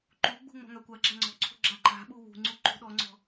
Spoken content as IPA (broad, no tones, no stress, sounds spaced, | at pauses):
ǃ u ɡ͡b ṳ ŋ͡m ɔ̤ ŋ a kʷ a ɡ͡ǁ a ŋ͡ǀ ɔ̤ ǀʰ ṳ ɡ͡ǁ a ǃ a̤ ɓ u w ṳ ŋ͡ǀ u ǃ ṳ ɗ ɔ ŋ͡ǀ ɔ̤